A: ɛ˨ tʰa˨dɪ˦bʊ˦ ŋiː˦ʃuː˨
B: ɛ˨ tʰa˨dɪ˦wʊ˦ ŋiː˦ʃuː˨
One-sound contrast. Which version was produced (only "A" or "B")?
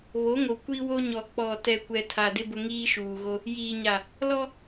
A